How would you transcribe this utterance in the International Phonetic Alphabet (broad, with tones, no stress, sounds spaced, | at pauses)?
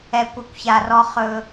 ɛ˨ kʷ ɨ˨ kʷ ç a˨ r ɔ˦ χ ɵ˦